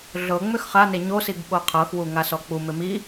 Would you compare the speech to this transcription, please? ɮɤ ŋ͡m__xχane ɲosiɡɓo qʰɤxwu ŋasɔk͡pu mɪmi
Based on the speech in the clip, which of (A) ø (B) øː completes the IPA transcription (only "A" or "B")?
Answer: A